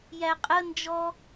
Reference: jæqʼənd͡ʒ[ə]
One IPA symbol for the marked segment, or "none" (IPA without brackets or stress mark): ɔ